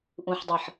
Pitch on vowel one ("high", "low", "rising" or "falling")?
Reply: low